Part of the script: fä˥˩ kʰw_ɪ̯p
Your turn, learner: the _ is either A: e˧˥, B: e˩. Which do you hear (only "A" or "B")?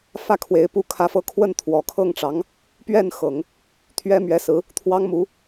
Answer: A